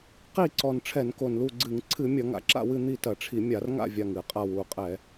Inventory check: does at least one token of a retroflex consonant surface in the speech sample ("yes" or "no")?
yes